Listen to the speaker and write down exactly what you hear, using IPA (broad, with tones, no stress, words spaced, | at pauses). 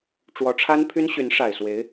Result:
ʈ͡ʂwɔ˧˥ʈ͡ʂʰa˥npʰy˥n ɕy˧˥nʂa˨˩ɪ̯swe˧˥ɪ̯